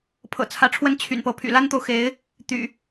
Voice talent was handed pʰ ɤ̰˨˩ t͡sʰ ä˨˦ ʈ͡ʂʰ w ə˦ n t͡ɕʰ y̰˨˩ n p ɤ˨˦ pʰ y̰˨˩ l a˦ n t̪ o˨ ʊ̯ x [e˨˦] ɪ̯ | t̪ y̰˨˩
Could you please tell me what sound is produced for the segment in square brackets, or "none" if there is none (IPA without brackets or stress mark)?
e˨˦